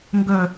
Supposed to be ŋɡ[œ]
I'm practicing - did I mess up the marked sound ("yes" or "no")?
no